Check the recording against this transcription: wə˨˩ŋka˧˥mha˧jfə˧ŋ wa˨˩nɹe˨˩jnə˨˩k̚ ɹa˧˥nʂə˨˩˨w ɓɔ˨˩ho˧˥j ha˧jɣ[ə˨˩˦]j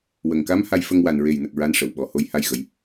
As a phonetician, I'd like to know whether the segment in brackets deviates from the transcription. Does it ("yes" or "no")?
no